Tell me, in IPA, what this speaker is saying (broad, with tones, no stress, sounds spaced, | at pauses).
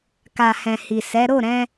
k a˨ h ɛ̃˨ h i˨ s ɛ˨˦ ɾ o˦˨ ɾ ɛ̃˧